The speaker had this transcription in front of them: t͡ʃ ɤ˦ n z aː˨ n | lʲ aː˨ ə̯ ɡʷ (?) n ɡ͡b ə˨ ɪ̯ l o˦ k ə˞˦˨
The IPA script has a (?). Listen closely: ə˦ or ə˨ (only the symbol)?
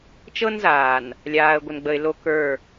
ə˨